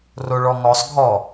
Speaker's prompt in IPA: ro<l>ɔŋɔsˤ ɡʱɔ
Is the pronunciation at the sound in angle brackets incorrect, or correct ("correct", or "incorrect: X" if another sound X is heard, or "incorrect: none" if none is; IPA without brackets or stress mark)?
incorrect: ɭ